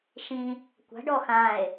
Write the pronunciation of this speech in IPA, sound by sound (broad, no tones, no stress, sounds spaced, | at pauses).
ʃ ĩ | kʷ a̤ ɖ ɔ x ã e̯